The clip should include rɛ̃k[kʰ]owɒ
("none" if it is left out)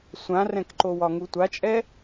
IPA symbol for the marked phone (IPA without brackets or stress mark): ǃ